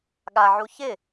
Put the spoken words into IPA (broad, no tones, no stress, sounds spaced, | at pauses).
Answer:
ɠ a ʕ u ç ɪ